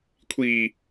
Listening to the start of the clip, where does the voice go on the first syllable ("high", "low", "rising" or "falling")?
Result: low